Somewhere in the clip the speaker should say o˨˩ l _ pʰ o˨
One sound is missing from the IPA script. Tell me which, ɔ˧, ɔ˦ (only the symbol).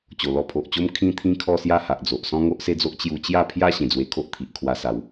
ɔ˧